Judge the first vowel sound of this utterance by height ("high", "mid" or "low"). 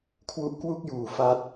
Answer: high